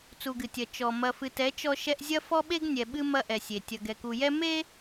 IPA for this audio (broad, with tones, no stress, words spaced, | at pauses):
t͡su˨ɡɨ˨tʲɐ˨ t͡ʃɔ˨ mɐ˨fɨ˨tɛ˨˦ t͡ʃɔ˦ʃɛ˦ʔ zʲɐ˦fɔ˦ɓe˦ɡ nʲɛ˨ɓɨ˦ mɐ˦ʔɛ˨sʲe˨ tʲɐ˨ɡɛ˨ku˨jɛ˦ me˦